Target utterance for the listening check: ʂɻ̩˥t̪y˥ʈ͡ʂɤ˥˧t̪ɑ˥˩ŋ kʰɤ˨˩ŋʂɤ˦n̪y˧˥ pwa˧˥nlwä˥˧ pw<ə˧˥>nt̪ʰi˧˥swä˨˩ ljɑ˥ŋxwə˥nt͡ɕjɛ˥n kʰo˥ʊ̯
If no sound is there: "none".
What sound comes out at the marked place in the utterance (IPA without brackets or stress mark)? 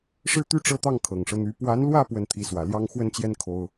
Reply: ə˥˩